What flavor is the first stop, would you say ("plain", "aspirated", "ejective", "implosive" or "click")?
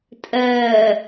ejective